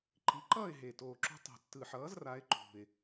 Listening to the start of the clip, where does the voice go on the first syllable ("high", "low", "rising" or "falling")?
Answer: rising